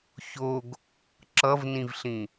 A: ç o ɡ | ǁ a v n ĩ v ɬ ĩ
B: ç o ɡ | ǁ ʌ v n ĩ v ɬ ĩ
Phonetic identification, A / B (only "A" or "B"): B